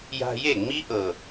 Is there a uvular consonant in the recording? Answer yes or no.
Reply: no